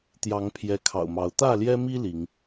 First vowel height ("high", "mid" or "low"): low